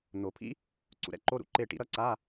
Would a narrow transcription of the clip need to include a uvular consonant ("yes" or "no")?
no